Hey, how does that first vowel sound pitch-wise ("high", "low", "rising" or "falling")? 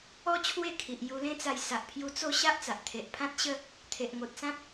high